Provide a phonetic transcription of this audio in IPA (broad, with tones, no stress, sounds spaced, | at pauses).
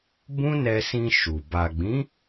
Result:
b ũ˦ n ɛ˧ s ĩ˧ ʃ u˨ b a˨ ɡ͡b ĩ˨˦